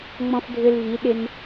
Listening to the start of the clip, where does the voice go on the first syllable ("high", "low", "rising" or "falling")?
high